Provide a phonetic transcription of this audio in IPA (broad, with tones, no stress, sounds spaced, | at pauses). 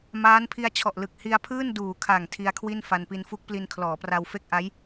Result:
m aː˦˥ n pʰ i˧ a̯ t͡ɕʰ ɔ˨˩ ʔ l ɯ˨˩ k̚ h i˧ a̯ pʰ ɯː˥˩ n d uː˩˦ kʰ a˨˩ ŋ tʰ i˧ a̯ kʰ w i˥˩ n f a˧ n p i˧ n f u˦˥ k̚ p l i˧ n kʰ l ɔː˩˦ p r a˧ w f e˥˩ k̚ ʔ a˦˥ j